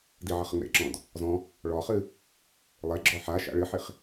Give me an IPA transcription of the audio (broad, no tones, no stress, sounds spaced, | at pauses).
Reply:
d i ʕ ə χ ə ŋ͡m ḛ ǁ ɔ̃ d | z ɔ̃ | ɭ ɔ χ ɨ | lˠ e ɡ͡ǁ ɔ ħ a ʃ a̰ ɭ ɨ ħ i χ